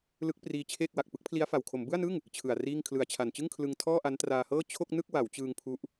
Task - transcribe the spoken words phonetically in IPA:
l ɯ˦˥ k̚ p r iː˧ t͡ɕʰ eː˥˩ k̚ w a˨˩ k̚ p ɯ˦˥ k̚ pʰ l i˦˥ a̯ f a˨˩ w kʰ o˩˦ m b ɯ˥˩ a̯ n ɯ˥˩ ŋ | t͡ɕʰ ɯ˨˩ a̯ r iː˥˩ ŋ kʰ l ɯ˨˩ a̯ t͡ɕʰ a˨˩ n t͡ɕ ɯ˥˩ ŋ kʰ l ɯ˧ ŋ tʰ ɔː˥˩ ʔ a˦˥ n t r aː˧ h ɤː˥˩ t͡ɕʰ o˥˩ k̚ n ɯ˥˩ k̚ w a˩˦ w t͡ɕ ɯː˧ ŋ pʰ u˦˥ ʔ

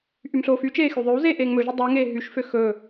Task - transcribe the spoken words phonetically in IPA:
ʔ y m ɬ oː f y t͡ʃ eː x y ðˤ ø w z eː ʔ eː ŋ m ɵ ʒ o dˤ eː ŋ eː ɦ y ʃ f ø x ɵ

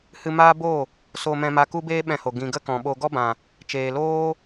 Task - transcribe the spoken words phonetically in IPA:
h ɨ˧ m aː˦ b o˦˨ | s o˧ m ɛ̃˧ m a˧ k u˦ b eː˦ ɓ ɛ̃˧ h o˨ ɡ ĩ˨ ɡ ə˦ k ɔ̃˨ ɓ o˧ ɡ ɔ˦ b ã˨ | t͡ʃ eː˨ l oː˦

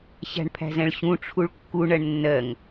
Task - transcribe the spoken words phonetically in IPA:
ɕ æ̤ ɳ pʰ æ̤ z ɛ̃ ɭ ɕ ũ ʈ͡ʂʰ u ɭ kː u ɳ ɜ ɳ nː ɜ ŋ

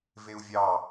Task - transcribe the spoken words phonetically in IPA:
v e u̯ vʲ ɑ

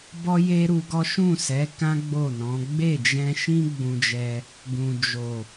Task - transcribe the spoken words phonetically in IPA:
b ɔ˦ j e˦ ɾ u˧ ɡ ɔ˦ ʃ ũ˦˨ s ɛ˨˦ k ã˦ ɡ͡b o˦˨ n ɔ̃˨˦ ɡ͡b e˦˨ d͡ʒ ɛ̃˧ ʃ ĩ˦ ɡ͡b ũ˧ d͡ʒ ɛ˧ | ɡ ũ˨ d͡ʒ o˨

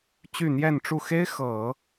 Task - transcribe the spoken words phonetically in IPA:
t͡ɕ y˥˧ n̪ j ɛ˥˧ n ʈ͡ʂ u˥˩ x e˥ ɪ̯ x ɤ˨˩˦

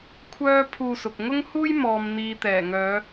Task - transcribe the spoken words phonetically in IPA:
kʷʰ œː˥ pʰ uː˧ s ʊ˨ k̚ ŋ ʊ˥ ŋ h uː˥ j m ɔː˨ m n̪ iː˨ t̪ ɛː˨˩ ŋ œː˨˧

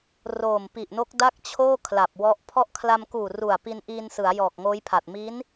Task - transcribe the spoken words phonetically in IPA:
r oː˨˩ m p i˨˩ ʔ n o˦˥ k̚ d a˥˩ k̚ t͡ɕʰ oː˥˩ kʰ l a˨˩ p̚ w ɔ˦˥ ʔ pʰ ɔ˦˥ ʔ kʰ l a˧ m k uː˨˩ r u˨˩ a̯ p i˧ n ʔ iː˧ n s ɯ˩˦ a̯ j ɔː˨˩ k̚ ŋ oː˦˥ j pʰ a˨˩ t̚ m i˦˥ n

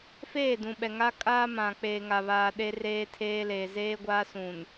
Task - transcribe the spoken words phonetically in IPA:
f eː˦˨ d ũ˨ ɓ ɛ˨ ŋ a˦ kʼ aː˦ m ã˨ k͡p eː˨ ŋ a˨ β aː˨ ɗ e˦ r eː˦ tʰ eː˦ l eː˨ z eː˦ ɡʷ aː˦ s ũ˨ n

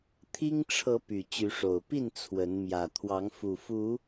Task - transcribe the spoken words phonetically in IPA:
t̪ʰ i˦ ŋ ʈ͡ʂʰ ɤ˨˦ p y˨˩ t͡ɕ y˨˦ ʂ o˨˩ ʊ̯ p i˥˨ n t͡sʰ w ə˨˦ n m j ä˨˩ t̪ʰ w ɑ˨˦ ŋ f u˨˩ f u˨˦

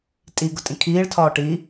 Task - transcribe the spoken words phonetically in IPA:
tʼ i ɡ ʊ tʼ ĩ kʰ iː ɭ tʰ ɒː ʈ i

